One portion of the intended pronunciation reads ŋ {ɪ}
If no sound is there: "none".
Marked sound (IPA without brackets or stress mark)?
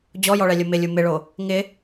ɪ